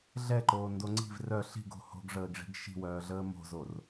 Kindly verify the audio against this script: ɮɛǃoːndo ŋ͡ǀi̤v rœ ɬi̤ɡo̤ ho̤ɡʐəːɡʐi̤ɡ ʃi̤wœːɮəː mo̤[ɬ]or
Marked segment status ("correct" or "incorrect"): incorrect